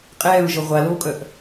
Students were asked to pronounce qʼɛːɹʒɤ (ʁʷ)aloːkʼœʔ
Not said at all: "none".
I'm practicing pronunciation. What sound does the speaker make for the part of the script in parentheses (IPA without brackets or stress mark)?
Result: ʁʷ